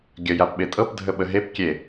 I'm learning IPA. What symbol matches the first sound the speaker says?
ɡʲ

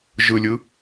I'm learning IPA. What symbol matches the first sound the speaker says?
ʒ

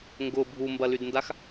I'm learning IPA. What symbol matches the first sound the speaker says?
ŋ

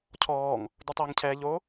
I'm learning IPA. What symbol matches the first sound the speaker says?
cʰ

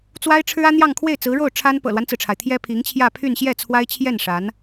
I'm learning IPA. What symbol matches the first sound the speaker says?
t͡s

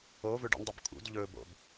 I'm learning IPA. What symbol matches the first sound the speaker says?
o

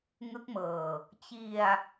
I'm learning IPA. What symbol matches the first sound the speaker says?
ŋ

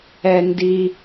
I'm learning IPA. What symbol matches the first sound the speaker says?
ɛ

